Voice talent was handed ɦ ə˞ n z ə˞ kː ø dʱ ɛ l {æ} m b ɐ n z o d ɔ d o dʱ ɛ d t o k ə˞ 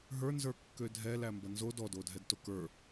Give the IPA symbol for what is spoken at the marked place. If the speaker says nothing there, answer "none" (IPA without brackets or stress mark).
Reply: æ